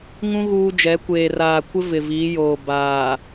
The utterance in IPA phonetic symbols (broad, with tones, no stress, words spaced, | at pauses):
ŋũ˦ ɣuː˦d͡ʒɛ˨˦ kʷeː˨raː˨ kʷɪ˦ vɪ˨viː˨˦joː˨ baː˨